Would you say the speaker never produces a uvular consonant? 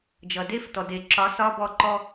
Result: yes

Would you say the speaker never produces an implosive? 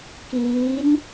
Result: yes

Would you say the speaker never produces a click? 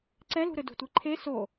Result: no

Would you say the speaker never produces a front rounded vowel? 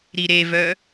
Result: no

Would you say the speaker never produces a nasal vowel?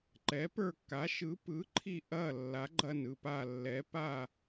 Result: yes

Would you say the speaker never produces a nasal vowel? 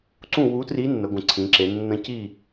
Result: no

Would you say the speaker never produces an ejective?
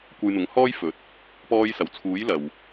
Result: yes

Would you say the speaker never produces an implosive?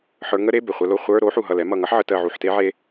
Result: yes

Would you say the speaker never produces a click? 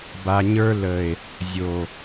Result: yes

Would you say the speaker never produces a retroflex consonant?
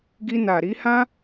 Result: yes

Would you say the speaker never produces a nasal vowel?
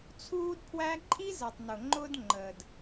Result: yes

